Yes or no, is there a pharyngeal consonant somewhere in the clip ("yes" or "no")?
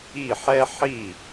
yes